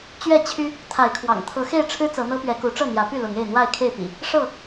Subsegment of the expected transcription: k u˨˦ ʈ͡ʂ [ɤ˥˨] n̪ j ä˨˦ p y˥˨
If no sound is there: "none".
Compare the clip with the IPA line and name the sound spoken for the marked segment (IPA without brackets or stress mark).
ɤ˥˨